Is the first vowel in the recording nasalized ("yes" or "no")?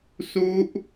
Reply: no